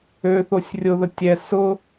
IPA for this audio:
ø θ o sʲ rʲ ʊ ð ə tʲ ɛ s ʊ

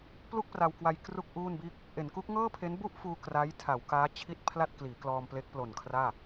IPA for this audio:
p l u˥˩ k̚ p r a˧ w k w a˧ j k r u˥˩ k̚ ʔ uː˥˩ n b iː˥˩ k̚ | ʔ e˩˦ n k u˦˥ k̚ ŋ ɤː˥˩ pʰ e˦˥ n b u˥˩ ʔ f uː˧ k r a˦˥ j tʰ a˩˦ w k aː˦˥ t͡ɕʰ i˥˩ t̚ pʰ l a˥˩ t̚ k l iː˩˦ k l ɔː˧ m p l e˦˥ k̚ p l o˨˩ n kʰ r aː˥˩

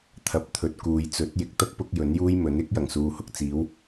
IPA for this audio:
t̪ʰ ɐ˧ p̚ t̪ʰ ɵ˨ t̚ k uː˨ j t͡s ɵ˨˥ t̚ j ɪ˨ k̚ t̪ ɐ˥ k̚ p ʊ˧ k̚ j ɵ˨˥ n j uː˥ j m ɵ˨˥ n ɪ˥ k̚ j ɐ˨˩ ŋ s uː˨ h ʊ˧ k̚ t͡s iː˨˥ w

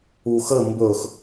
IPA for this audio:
u x ə m b ɵ x

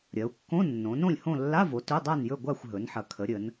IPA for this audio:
ɾʲ ɐ˩˧ u̯ kː õ˧˥˧ nː õ˩˧ n õ˥˨ lʲ h õ˥˨ lː a˧˥˧ v o˩˧ t ɵ˧˥˧ dˤ a˥˨ n j ɵ˥˨ ɡʷ a˥˨ xʷ ɦ ɵ˩˧ n ħ ɐ˩˧ kʰ ə˩˧ ɾʲ ə˩˧ n

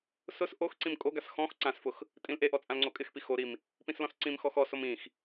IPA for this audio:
s ʊ s ʔ o x ǀ ĩ m kʼ o ɡ a s x ɔ̃ x ǀ ã s f ʊ x | tʼ ĩ l ʔ e ʔ ɔ t͡sʼ ã l ŋ͡ǀ o kʼ ɪ x p i x o ɾ i m | p ĩ s l ɔ̃ s ǀ ĩ m x ɔ x ɔ s o m ĩ x

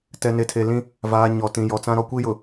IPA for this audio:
t ɛ˨ n e˨ tʰ e˨ l ĩ˦ | v aː˨ ɲ ɔ˨ t ĩ˨ j ɔ˨ t͡s ã˦ ɾ ɔ˦ kʷ i˦ j ʊ˨

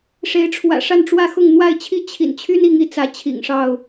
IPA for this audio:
ʂ e˨˦ ɪ̯ ʈ͡ʂʰ w ä̰˨˩ ʂ a˥˨ n ʈ͡ʂ w ä˥˨ x ʊ˥˨ ŋ n̪ w a˥˨ ɪ̯ t͡ɕʰ i˦ t͡ɕʰ ḭ˨˩ n t͡ɕʰ y˦ n i˨˦ ŋ i˨˦ t͡s ä˨˦ t͡ɕʰ ḭ˨˩ ŋ ʂ ɑ˥˨ ʊ̯

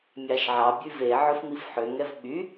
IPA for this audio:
mʲ ɑ ʃ ʕ ɑ bʲ ʉ v e ʕ ɵ f m i f ħ ø ŋ ɛ v ɓ y

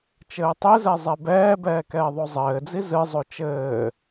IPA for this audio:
t͡ʃ ɘː tˤ e z ɛ zˤ ɛ b ɛː b ɛː k ɛː ðˤ o zˤ ɘː d͡z i z ɨ zˤ o t͡ʃ ɘː

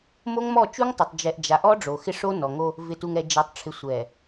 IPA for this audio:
m o˦ ŋ m ɔ˦˨ t͡ʃ u˦ ŋ tˤ o˨ tˤ d͡ʒ ɛ˨ ʔ d͡ʒ a˨ ʔ ɔ˦ ɖ͡ʐ o˨ x ɪ˦ ʂ o˦ n ɔ˨ ŋ o˦ | v ɪ˨ t u˨ ŋ ɛ˨ d͡ʒ ɛ˨ tˤ ʈ͡ʂʰ ɪ˨ sʷ ɛ˨

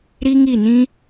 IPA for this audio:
ɾ i˦ ŋ i˦˨ n ĩ˦

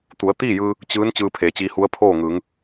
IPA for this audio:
t̪ u˩˧ ə̯ t̪ iː˥˨ j ɯː˧ | t͡ɕ ɯː˧˥ n t͡ɕ ɯː˧ pʰ eː˩˧ t͡ɕ iː˧ h u˧˥ ə̯ pʰ oː˥˨ ŋ ɯː˩˧ ŋ

